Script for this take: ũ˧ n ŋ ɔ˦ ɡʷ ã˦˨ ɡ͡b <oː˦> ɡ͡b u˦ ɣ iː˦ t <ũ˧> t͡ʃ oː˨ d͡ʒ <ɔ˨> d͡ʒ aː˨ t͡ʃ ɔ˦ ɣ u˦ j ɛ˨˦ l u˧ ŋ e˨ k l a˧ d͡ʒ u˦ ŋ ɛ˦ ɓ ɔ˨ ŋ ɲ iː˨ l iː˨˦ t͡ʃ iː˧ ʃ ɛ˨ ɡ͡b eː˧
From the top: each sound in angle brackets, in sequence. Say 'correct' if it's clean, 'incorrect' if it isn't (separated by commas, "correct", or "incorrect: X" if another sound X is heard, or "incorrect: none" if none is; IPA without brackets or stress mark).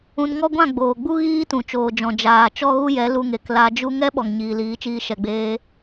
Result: incorrect: oː˨, incorrect: ũ˨, incorrect: ɔ̃˨